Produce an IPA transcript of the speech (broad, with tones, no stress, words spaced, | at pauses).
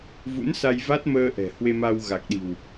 vṵ˧˥nsa˧jva˦˥t̚məː˧ ʔɛ̤˨˩ hwe˧ma˧wɣa˨˩k̚ɗi̤˨˩w